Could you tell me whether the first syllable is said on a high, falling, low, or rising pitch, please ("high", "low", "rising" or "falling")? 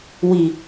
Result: low